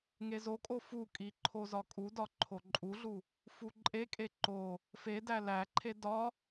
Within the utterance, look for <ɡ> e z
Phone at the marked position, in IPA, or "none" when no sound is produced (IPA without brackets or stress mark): ŋ